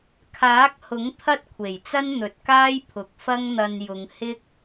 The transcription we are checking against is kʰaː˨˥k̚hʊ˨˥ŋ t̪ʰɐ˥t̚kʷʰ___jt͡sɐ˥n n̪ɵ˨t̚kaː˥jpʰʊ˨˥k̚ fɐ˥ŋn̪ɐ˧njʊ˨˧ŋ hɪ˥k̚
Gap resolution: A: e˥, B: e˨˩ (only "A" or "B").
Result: B